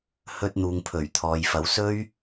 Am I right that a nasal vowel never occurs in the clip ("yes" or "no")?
yes